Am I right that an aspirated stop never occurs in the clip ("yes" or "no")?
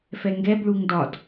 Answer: yes